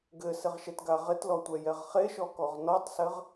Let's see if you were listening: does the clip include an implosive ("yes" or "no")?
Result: no